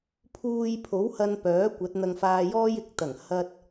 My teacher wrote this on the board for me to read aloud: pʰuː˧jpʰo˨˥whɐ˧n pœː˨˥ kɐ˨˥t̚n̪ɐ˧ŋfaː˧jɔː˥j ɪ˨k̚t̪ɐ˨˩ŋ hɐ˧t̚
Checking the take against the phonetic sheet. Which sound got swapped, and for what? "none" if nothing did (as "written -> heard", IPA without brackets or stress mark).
k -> kʷ